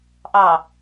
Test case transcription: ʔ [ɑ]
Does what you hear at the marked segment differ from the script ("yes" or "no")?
no